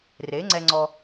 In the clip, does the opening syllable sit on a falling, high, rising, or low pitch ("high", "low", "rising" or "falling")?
rising